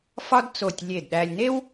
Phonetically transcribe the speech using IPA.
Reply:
f ɒ˥ d t͡s o˧˩ tʲ lʲ e˧˩ d ɗ æ˧ lʲ n e˥ w

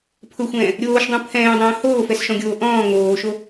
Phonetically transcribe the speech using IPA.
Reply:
pʰ ʊ xʷ ɛ̃ː | ɾʲ oː ʃ dˤ ũ pʰ ɛ̃ː dˤ ɛ̃ː h oː f ɛ s ʃ ɔ̃ ɡʲ oː ʔ ɔ̃ː ŋ oː ʃ o

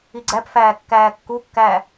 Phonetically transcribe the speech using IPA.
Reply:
i ɡ͡ǀ æ p f æː kː æː kː u kː æː

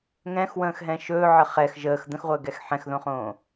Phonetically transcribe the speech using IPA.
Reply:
ŋ ɛ̃ x w ə̃ː x ɦ ɛ̃ ʃ ɵː ʕ ə χ ɛ x ʒ əː x d̪ ə̃ x ʁʷ əː ɡ ɛ x ħ ɛ̃ x ð õ χ õː

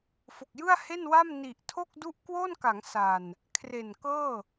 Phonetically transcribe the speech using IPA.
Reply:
f o˨˩ k̚ j ɯ˥˩ a̯ h e˥˩ n w a˥˩ m n i˨˩ ʔ tʰ o˥˩ k̚ d u˥˩ ʔ k w o˥˩ n k a˩˦ ŋ s a˨˩ n | kʰ r e˨˩ n k ɤː˥˩

